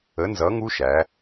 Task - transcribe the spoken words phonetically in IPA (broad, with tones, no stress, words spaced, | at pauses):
ə˨˥nzʌ˨˥ŋu˦˥ʃæ˩˧